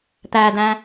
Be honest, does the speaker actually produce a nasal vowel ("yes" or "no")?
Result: yes